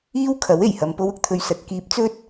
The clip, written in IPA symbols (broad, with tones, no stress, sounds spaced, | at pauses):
iː˥ w kʰ ɐ˨˥ w e˨˩ j h ɐ˨ m p o˧ w ʊ˧ k̚ t̪ʰ ɵ˨˧ ɥ s ɐ˨ t̚ k iː˧ p̚ t͡s ɵ˥ t̚